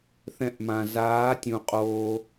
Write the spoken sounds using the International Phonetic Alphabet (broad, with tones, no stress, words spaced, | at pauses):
θɛ̃˧ʔmã˨zaː˨˦tʲũ˨ qʼoː˧